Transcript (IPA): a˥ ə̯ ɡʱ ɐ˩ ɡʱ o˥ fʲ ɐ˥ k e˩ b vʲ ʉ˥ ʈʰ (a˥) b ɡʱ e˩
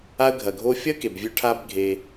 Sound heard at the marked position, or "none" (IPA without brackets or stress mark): a˥